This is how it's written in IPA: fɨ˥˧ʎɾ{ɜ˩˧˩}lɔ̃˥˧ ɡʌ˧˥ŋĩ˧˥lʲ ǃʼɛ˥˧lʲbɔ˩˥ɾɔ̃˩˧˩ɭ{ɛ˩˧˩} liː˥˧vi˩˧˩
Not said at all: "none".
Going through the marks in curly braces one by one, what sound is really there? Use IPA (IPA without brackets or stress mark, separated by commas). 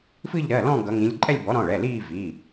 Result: ɜ˩˧˩, ɛ˩˧˩